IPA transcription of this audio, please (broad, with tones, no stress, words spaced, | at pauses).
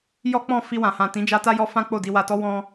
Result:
jɔ˦k͡pɔ̃˦˨ fi˧wã˨hã˨ tĩ˨˦d͡ʒa˧ta˦ jɔ˦fã˦ k͡po˦˨di˧wa˧tɔ˦ wɔ̃˦